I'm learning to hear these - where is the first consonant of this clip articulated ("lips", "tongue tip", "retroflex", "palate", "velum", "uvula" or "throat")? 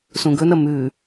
tongue tip